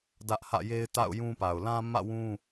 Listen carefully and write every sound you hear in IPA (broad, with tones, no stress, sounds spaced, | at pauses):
d ä˦ ʔ h ä̰˦˨ j e˦ ɪ̯ t a̰˦˨ ʊ̯ j ũ˦ p a˨ ʊ̯ l ã˦ m ä̰˦˨ w ũ˦